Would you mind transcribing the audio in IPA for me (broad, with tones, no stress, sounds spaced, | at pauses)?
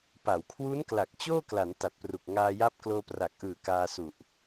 p a˩˦ w kʰ w u˦˥ n k l a˨˩ k̚ t͡ɕ oː˥˩ k l a˩˦ n t a˨˩ t̚ p r u˨˩ k̚ ŋ aː˧ j a˦˥ p̚ k l oː˧ p r a˨˩ k̚ ʔ ɯː˨˩ k aː˧ s u˨˩ ʔ